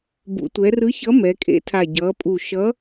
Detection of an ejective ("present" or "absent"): present